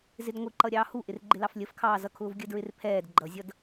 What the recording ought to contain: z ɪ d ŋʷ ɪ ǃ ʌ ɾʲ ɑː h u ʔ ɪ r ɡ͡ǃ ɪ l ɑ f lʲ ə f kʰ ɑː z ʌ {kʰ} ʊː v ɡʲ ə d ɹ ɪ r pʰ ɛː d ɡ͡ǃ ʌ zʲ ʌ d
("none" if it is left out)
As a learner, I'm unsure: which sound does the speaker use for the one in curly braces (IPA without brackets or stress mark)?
kʰ